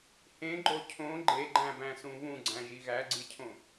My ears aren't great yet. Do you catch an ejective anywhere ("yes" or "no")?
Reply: no